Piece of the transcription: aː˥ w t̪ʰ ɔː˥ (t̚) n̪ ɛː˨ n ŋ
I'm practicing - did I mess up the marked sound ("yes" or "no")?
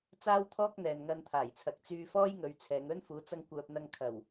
yes